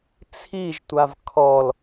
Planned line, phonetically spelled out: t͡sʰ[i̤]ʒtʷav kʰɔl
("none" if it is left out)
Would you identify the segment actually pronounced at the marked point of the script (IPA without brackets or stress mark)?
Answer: i